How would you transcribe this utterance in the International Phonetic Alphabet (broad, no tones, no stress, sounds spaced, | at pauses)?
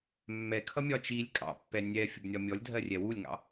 mː ɛ kʰ ʌ mʲ ɒ t͡ʃ i lʲ kʼ ɑ̰ pː ɛ nʲ ɛ fʲ ʊ b nʲ ɒ mʲ ɔ lʲ dʱ ɜ rʲ ɛ w u lʲ ŋ ɑ̰